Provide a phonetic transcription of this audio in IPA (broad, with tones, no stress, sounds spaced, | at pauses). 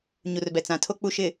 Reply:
ɲ u˨ r b ɛ˨ t͡s ã˨ tʰ o˦ k͡p u˨ ʃ ɪ˨